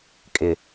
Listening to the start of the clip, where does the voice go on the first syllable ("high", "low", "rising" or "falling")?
low